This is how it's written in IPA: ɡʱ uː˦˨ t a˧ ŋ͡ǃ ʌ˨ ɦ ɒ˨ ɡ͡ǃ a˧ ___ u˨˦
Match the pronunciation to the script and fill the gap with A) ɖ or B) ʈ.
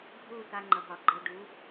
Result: A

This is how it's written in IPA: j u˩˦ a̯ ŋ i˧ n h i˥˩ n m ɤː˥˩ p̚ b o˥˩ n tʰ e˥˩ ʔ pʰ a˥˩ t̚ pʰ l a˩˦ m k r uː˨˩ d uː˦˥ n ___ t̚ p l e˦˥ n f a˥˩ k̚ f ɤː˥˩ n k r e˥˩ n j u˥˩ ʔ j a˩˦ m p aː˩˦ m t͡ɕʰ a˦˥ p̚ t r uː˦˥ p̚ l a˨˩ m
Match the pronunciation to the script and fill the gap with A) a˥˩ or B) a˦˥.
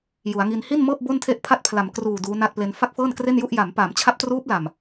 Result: A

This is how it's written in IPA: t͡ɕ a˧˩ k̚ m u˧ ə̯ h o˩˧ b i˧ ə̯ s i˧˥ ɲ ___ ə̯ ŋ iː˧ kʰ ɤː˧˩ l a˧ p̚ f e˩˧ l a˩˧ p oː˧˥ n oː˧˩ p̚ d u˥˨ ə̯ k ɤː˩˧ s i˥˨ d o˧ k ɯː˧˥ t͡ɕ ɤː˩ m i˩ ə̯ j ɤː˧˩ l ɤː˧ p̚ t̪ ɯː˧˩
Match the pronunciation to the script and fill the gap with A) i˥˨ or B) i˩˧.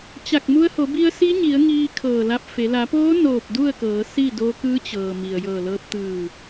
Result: B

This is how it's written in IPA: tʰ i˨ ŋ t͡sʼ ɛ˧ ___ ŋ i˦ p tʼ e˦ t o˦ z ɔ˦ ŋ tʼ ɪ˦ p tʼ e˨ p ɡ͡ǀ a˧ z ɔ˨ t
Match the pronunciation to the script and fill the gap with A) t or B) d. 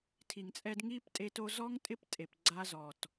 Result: B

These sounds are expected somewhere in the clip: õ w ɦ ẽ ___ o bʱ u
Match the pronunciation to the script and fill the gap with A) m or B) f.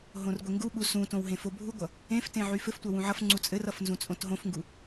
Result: B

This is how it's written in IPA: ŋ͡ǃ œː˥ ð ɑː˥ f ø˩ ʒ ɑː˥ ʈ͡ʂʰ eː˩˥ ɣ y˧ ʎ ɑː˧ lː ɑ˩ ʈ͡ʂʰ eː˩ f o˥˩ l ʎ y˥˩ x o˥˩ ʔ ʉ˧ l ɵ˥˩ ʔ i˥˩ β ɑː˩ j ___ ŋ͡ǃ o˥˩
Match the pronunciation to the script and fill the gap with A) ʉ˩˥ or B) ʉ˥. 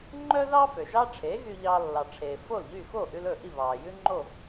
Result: B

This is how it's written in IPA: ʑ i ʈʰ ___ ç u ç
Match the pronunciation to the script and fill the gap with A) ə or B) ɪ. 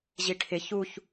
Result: B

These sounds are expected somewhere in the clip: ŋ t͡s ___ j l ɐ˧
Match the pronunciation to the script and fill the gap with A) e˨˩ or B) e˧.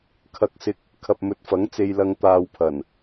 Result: B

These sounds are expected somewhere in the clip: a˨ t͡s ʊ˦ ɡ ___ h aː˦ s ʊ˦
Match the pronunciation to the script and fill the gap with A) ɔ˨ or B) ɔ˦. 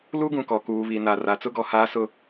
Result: A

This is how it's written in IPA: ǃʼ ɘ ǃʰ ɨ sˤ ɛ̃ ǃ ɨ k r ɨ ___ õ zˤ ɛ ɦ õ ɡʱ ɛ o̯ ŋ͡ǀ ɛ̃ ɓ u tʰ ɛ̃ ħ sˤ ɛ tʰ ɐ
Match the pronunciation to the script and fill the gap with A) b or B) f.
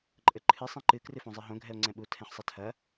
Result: B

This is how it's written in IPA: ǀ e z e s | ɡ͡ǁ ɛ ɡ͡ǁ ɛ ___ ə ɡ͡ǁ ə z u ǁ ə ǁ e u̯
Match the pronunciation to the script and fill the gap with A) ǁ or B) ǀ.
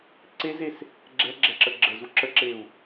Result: A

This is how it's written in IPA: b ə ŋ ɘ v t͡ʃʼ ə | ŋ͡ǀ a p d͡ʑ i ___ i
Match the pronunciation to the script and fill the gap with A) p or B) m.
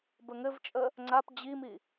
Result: B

